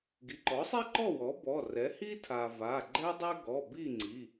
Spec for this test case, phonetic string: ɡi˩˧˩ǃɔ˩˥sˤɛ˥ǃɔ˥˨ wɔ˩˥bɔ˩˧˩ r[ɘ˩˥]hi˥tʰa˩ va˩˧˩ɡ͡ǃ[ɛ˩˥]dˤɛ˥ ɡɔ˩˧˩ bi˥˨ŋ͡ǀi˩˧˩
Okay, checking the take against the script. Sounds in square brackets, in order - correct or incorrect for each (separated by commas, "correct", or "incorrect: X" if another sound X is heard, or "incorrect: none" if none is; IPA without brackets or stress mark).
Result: incorrect: ɛ˩˥, incorrect: ɛ˥